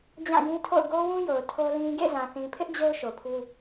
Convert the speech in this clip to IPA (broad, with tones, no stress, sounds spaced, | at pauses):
d͡ʑ ã˦˨ j ĩ˦ tʰ o̰˦˨ ʊ̯ ɡ o˦ w ũ˦ j o˨ ʊ̯ tʰ o˦ l ĩ˦ ɡ ḛ˦˨ z ã˨ θ ĩ˨ pʰ ɪ˦ ʔ d͡ʑ o˦ ʊ̯ ʃ o˨ pʰ u˦